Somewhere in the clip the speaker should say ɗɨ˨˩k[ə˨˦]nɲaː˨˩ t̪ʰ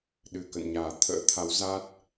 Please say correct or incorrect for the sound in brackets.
incorrect